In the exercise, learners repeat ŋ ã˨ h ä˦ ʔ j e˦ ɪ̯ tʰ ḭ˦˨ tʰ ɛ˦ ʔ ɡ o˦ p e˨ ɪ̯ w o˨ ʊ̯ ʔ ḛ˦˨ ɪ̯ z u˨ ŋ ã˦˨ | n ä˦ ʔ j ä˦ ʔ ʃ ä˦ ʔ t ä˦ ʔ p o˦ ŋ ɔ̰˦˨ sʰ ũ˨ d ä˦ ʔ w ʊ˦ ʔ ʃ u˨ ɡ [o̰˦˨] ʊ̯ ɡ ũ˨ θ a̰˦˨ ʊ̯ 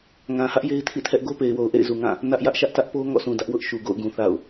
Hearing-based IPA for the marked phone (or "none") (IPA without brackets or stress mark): o̰˦˨